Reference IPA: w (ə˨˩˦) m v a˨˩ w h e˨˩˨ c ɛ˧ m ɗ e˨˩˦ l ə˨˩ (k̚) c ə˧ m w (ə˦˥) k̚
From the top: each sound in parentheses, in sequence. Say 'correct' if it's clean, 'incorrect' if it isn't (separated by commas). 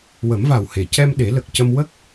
correct, correct, correct